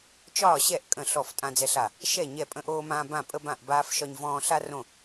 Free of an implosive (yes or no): yes